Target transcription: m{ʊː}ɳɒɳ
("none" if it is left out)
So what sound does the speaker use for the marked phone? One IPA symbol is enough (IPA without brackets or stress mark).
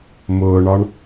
ʊː